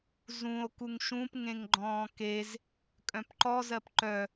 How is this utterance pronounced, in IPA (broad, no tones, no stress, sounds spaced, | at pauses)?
z ũ o̯ k u ŋ ʃ ũ p ŋ ẽ ŋ ɡ͡ǃ ɔ̃ː k e z | kʼ œ̃ p ǃ ɔ z ɜ p ǃ œ